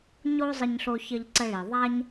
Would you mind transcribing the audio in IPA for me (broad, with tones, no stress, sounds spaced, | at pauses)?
ɲ o˥ zˤ ə˥ ɲ ɬ o˥ ç ə˥ ʎ ǀ ə˥ ɭ i˩ ðˤ a˥ ɲ